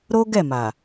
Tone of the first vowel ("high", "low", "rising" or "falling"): high